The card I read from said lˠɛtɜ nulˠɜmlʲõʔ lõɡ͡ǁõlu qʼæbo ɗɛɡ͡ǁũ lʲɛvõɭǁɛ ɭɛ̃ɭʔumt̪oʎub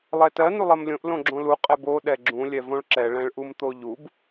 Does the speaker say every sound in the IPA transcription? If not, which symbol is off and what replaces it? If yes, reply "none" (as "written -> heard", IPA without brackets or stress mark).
æ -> ɛ